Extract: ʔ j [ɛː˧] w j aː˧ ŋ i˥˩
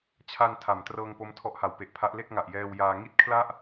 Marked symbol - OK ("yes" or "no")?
yes